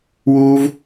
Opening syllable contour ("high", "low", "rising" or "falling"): high